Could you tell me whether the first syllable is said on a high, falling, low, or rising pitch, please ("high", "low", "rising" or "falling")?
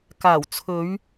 low